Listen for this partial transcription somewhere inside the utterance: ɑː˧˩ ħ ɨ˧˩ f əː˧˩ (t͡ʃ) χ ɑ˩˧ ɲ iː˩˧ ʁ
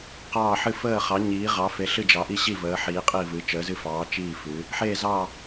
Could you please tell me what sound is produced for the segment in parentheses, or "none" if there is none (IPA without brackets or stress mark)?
none